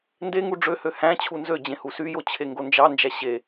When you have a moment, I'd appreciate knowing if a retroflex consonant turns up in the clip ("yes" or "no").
yes